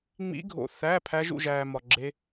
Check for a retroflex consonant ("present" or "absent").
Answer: absent